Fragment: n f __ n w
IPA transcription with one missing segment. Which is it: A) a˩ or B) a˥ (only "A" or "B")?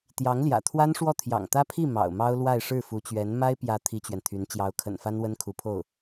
B